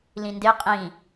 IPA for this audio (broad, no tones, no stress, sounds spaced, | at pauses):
l ĩ n d e qʼ ĩ